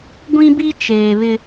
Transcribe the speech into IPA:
ɡʷ ĩ˦ b i˦ t͡ʃ eː˨ β ɪ˦

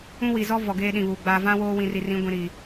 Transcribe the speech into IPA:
ũ˦ w i˨ z ɔ˦ v ɔ˨ ɡ eː˦ ɗ ĩ˨ β uː˨ ɡ͡b aː˨ v ã˦ w oː˦ w ĩ˨ r i˨ r ĩ˨˦ ɡʷ ĩ˨ ɾ iː˨

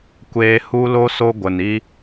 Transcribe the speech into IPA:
kʷ eː˧ h u˦ l o˦ s o˦ ɡʷ ə˨ n i˦

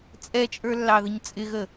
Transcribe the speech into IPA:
t͡sʼ ɛ t͡ʃʼ ə˞ lː ɑ ð ə ɲ t͡sʼ ɪ ɣ ə

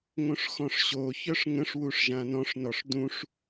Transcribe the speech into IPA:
ŋ õ ʂ x ɔ̃ ʂ ɕ o ç œ ʂ ŋ ə̃ ʂ w u ʂ ʒ ã n ɔ̃ ʂ n ɔ ʂ d ũ ʂ

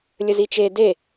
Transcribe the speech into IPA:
lʲ ə z i t͡ʃ e d e

